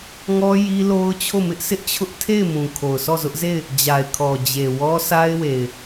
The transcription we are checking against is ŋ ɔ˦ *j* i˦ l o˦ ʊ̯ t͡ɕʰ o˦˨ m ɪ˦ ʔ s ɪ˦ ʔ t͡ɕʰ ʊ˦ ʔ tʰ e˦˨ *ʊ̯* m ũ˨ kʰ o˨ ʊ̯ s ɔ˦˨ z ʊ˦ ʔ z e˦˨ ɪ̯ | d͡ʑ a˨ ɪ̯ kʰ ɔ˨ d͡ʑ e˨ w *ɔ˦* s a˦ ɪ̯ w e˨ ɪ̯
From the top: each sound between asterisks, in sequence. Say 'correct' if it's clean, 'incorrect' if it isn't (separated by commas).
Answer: correct, incorrect, correct